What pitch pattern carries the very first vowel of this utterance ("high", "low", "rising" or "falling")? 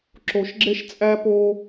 low